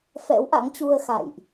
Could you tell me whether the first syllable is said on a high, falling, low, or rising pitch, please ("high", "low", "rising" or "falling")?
rising